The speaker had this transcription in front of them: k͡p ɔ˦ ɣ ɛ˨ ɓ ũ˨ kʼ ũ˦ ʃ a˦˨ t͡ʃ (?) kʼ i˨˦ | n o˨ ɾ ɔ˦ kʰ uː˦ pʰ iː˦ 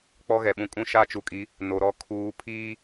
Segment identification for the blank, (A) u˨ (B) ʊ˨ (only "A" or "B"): A